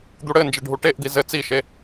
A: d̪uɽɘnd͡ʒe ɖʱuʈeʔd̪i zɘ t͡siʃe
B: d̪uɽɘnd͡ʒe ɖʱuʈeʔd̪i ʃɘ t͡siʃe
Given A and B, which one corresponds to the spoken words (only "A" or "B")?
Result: A